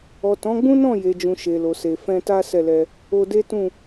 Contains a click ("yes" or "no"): no